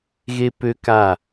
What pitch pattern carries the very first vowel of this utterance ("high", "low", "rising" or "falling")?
high